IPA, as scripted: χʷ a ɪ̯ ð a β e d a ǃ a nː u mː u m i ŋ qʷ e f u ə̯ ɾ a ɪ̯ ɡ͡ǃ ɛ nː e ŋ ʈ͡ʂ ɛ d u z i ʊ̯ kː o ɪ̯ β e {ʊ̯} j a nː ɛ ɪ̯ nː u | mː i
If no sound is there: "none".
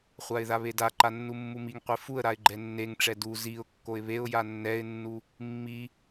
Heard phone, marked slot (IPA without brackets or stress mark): ʊ̯